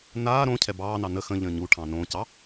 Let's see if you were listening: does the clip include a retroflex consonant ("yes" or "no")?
yes